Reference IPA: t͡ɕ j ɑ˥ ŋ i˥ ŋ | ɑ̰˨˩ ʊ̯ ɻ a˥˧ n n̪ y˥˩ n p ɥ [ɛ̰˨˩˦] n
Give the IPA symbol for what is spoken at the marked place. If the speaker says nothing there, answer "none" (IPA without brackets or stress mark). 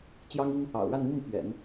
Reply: ɛ̰˨˩˦